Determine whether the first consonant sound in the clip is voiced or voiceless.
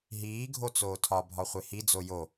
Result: voiced